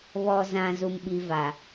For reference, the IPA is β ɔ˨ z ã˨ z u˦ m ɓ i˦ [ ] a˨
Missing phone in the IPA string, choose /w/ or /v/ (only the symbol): v